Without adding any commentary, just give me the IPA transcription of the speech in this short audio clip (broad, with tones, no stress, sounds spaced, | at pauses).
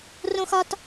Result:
r õ˥ x ɒ˥ t